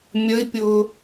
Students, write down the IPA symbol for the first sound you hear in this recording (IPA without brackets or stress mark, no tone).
mʲ